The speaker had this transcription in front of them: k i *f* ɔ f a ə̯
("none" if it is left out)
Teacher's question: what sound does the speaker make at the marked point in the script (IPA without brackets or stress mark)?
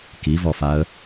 v